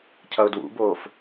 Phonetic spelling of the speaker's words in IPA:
cʰ ʌ ʊ̯ d w ṵ b oː f

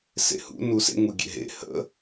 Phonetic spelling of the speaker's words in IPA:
s ḛ h ṵ n u s ḛ ŋ u ɡʲ ḛ ɦ ḛ h ə̰

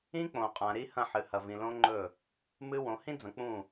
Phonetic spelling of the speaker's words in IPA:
ĩ˦ k͡p õ˨ qʼ ã˨ ɾ i˦ h ɐ̃˦˨ ħ ɨ˨ h ɐ˨ v ĩ˨ l õ˦ ŋ͡ǃ ɵ˦˨ | m ɨ˦ w õ˨˦ h ĩ˦ d͡z ɐ̃˨ k͡p ũ˦˨

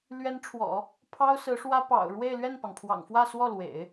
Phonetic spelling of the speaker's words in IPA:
l ɥ ɛ˧˥ n ʈ͡ʂʰ w ɔ̰˨˩˦ | pʰ ɑ˥ ʊ̯ s ɹ̩˧˥ ʂ w ä˥ p ɑ̰˨˩ ʊ̯ ɻ w e˥˧ ɪ̯ l ɥ ɛ˥˩ n p ɑ˩ ŋ pʰ w ɑ̰˨˩ ŋ f w ä˥˧ s w ɔ˥˩ l w ḛ˨˩˦ ɪ̯

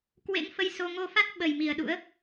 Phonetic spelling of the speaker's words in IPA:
k w ḛ˧˥ ŋ f ə˧ j s o˧ ŋ o˧ f a˦˥ t̚ ɓ ə˨˩ j m i˨˩ ə̯ ɗ ṵ˧˥ ə̯

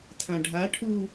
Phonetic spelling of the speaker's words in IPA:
tʰ ã ɖʱ a ʈʰ u

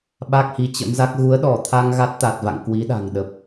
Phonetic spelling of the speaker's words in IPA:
ɓ a˦˥ k̚ h i˨˦ t͡ɕ ə̰˧˥ m z a˦˥ k̚ ɣ u˨˦ ə̯ ɗ ɔ˧˩ t̪ʰ a˧ ŋ ɣ a˦˥ t̚ t̪ a˨˩ t̚ v a̰˧˨ ŋ k w i˨˦ ɗ a̤˨˩ ŋ ɗ ə˨˩ p̚

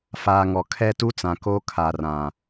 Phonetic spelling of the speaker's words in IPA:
f aː˨ ŋ ɔ˨ kʰ ɛ˦ t u˦ t͡s ã˨ k o˦ kʰ a˨ r ã˨

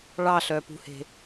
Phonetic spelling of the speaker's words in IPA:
ɭ ɑ ɬ œ p ṳ h e̤

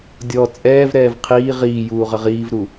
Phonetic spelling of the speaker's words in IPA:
dʲ ɔ t͡sʼ ɛː v ɾ ɛː v qʰ iː ʁ iː j uː ʁ ə ʁ iː v ɾ u

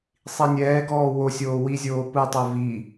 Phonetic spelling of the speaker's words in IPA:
sˤ i nʲ ɛː ɡ ɔː w o sʲ oː w i zʲ oː p ɯ tˤ o v i

